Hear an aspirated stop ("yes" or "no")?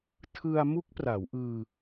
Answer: yes